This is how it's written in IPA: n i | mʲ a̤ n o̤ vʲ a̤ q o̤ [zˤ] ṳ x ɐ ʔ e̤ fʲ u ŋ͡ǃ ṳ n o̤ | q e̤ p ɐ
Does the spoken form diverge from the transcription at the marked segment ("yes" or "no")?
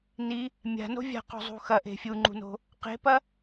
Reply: no